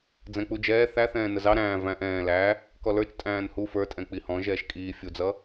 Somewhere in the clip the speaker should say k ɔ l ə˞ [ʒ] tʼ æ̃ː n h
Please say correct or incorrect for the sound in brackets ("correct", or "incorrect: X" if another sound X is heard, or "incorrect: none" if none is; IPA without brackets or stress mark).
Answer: incorrect: t͡ʃ